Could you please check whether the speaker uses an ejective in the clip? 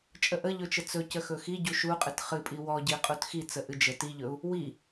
yes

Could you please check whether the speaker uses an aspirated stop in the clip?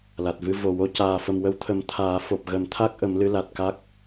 yes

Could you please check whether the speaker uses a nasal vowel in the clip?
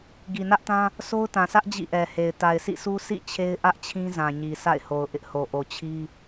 yes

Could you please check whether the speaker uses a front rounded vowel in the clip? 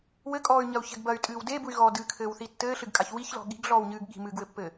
yes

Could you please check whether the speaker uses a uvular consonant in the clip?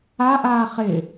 yes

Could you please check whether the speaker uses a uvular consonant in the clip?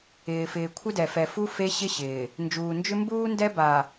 no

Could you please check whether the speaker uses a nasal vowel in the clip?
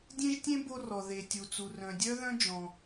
yes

